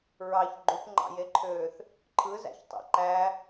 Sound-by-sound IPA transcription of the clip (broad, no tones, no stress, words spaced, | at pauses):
ɹɑç ɡ͡ǃupŋ͡ǃɑ̰jeǃʰøːθ | ǃʰɯzæ̰çtˤḛ ǃæ